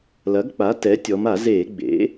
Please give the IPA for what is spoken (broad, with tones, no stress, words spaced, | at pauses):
lɐ˩˥ɡk͡pa˩˥ tɛ˩˥ tʲɔ˩˧ma˧˩˧zeː˧˩˧ ɡ͡bḛ˩˥